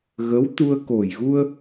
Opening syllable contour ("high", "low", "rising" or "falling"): rising